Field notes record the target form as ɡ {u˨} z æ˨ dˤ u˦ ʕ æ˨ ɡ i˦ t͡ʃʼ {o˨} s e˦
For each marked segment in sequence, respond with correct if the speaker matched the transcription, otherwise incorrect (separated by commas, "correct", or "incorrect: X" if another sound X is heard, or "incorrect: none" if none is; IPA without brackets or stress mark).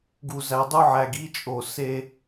correct, correct